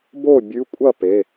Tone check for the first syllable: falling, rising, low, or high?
falling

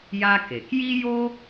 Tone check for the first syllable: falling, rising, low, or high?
high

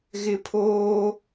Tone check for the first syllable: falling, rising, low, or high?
high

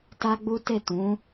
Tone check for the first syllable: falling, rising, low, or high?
high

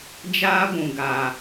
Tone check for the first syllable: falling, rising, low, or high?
high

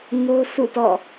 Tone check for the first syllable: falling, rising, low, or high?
high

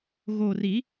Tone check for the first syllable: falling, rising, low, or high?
low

